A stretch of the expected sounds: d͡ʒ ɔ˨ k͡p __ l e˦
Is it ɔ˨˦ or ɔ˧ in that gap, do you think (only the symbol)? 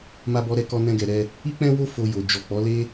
ɔ˨˦